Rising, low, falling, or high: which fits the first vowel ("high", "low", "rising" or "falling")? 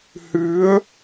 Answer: rising